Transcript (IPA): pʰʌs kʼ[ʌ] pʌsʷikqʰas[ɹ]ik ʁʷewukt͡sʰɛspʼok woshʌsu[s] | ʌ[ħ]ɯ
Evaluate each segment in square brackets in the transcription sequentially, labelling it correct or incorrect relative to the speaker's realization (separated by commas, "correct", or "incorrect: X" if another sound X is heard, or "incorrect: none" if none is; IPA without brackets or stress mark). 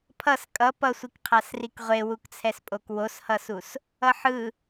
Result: correct, incorrect: r, correct, correct